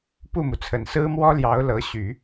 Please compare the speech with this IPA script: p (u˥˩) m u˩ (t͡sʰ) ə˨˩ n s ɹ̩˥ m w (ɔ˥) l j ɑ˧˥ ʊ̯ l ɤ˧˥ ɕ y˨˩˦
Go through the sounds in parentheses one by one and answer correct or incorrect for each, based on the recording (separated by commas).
correct, correct, correct